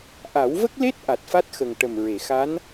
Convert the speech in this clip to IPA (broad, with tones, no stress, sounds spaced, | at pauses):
ʔ a˨˩˦ w v ə˦˥ k̚ l e˦˥ t̚ ʔ a˨˩ t̚ f a˦˥ t̚ x ə˨˩ ŋ ʈ ə˨˩ m ɹ e˨˩˨ x a˧˥ n